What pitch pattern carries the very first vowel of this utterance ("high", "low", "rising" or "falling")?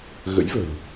rising